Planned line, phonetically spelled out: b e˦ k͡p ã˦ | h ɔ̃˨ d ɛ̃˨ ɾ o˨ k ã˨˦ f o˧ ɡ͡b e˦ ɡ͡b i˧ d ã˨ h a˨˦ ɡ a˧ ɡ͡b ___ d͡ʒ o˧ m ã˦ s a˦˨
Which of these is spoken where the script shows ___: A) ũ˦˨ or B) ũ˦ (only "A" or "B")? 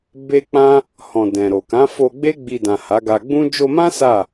B